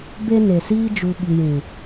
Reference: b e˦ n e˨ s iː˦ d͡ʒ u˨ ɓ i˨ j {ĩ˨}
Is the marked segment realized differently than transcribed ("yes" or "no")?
no